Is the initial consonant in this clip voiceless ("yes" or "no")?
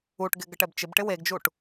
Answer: yes